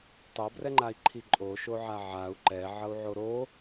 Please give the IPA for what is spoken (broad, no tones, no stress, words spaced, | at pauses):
tˤobrɛŋ͡ǃai̯ǃʰi ǃʼoʃoʕa ʕau̯ ǃɛʕʌu̯ʕo ɾo